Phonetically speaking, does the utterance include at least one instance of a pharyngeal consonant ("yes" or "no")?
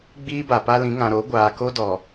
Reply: no